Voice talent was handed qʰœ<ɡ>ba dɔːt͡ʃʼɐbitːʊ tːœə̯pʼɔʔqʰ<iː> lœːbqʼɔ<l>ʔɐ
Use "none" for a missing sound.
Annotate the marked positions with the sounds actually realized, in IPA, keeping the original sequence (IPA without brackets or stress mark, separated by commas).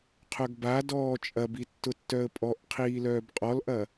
ɡ, iː, l